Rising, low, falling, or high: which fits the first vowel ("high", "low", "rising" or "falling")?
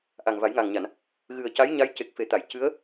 low